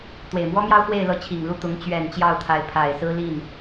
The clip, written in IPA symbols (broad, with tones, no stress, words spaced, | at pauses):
t̪we˨˩ɪ̯mwɔ˥mjɑ˥ʊ̯ xwe˥˧ɪ̯lɤ˥˩t͡ɕʰi˨˩ŋlu˥˩ t̪ʊ˧˥ŋ t͡ɕɥɛ˨˩n t͡ɕjɑ˥˩ʊ̯t̪ʰa˧˥ɪ̯pʰa˨˩ɪ̯sɹ̩˥ li˥˩n